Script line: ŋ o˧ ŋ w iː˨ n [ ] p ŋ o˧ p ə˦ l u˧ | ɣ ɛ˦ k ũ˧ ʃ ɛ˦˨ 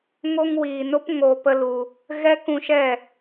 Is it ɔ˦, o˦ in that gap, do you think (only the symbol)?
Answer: o˦